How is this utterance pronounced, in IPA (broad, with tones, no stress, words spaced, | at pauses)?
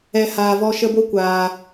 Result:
ɛ˨ haː˨vɔ˧ ʃə˧bo˦ kʷaː˨